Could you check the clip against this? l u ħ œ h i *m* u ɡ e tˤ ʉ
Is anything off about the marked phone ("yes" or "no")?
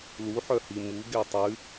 no